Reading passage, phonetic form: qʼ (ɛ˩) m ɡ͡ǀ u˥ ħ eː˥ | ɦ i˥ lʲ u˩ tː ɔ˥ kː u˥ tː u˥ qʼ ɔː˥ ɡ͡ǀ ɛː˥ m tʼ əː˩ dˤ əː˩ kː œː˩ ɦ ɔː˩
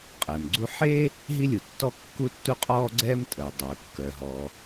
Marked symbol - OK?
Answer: yes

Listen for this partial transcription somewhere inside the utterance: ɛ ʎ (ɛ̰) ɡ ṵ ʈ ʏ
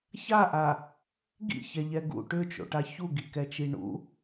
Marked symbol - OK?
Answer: no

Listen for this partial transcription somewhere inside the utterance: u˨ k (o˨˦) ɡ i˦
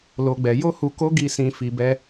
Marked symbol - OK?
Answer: yes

